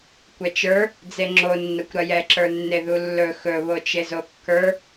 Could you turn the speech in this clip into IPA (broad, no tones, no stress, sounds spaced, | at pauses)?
kʷ ɛ t͡ʃ ə˞ | d͡z e ŋ͡ǁ o nː ɐ kʷ ɾ ɐ j ɛ ǁ ə˞ nː e ð u lː ɵ x ɵ β o t͡ʃ e z o kː ə˞